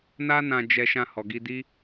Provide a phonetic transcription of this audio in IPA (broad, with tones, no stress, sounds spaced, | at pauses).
n a˦ n ã˧ d͡ʒ ɛ˧ ʃ ã˧ h ɔ˨ ɡ i˧ d i˦